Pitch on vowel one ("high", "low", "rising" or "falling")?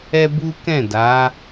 high